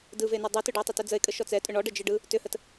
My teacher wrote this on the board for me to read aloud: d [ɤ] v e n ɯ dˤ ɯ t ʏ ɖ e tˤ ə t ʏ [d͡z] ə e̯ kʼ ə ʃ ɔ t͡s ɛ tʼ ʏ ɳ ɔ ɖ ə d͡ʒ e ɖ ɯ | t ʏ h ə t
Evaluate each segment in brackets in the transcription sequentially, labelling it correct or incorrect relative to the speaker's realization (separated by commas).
incorrect, correct